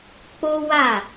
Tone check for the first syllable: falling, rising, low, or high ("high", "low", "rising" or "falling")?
high